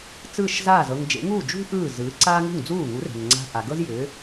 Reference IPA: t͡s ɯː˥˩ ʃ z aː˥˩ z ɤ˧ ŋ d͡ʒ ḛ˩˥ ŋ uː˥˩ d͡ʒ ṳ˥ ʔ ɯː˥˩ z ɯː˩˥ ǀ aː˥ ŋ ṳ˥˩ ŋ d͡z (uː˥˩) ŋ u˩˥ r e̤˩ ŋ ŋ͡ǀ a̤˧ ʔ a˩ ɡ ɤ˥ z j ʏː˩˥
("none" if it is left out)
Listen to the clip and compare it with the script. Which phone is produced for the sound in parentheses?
uː˥˩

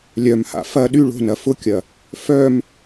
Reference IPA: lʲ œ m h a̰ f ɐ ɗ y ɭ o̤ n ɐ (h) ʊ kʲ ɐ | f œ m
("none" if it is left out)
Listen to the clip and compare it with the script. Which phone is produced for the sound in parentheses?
f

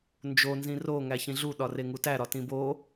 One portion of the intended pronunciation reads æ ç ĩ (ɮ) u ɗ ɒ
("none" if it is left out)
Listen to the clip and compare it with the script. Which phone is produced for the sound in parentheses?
ɮ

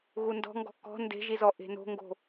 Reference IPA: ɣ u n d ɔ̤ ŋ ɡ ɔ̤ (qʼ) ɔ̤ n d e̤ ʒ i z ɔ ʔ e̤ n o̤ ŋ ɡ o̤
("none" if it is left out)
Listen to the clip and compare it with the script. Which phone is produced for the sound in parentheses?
k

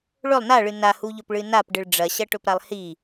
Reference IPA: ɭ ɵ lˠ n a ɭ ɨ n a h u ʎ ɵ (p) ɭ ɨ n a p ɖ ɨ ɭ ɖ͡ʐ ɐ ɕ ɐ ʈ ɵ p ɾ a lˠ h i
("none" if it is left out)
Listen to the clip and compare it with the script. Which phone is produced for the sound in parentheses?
p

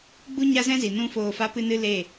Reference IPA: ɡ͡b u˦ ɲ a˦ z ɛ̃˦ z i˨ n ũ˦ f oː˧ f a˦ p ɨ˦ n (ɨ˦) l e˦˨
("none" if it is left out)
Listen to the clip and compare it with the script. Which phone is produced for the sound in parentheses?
ɨ˦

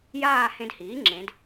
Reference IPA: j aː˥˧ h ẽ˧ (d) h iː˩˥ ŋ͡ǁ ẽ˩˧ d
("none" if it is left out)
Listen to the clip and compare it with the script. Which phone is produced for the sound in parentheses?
d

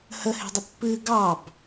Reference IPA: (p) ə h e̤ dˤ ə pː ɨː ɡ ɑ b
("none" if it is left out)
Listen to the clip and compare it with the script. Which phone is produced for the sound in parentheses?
h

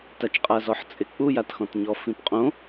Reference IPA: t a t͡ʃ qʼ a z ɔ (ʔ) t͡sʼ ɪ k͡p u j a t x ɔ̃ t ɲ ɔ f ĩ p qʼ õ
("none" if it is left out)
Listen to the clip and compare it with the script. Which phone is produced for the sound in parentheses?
ħ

